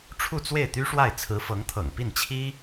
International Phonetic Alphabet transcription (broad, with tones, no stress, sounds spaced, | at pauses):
ʈ͡ʂʰ u˥˧ t͡s w e˥˩ ɪ̯ t̪ y˥ ʂ w a˥˩ ɪ̯ t͡sʰ ɹ̩˧˥ f ɤ˧˥ ŋ t̪ʰ ɤ̰˨˩ ŋ p i˥˩ n t͡ɕʰ i˥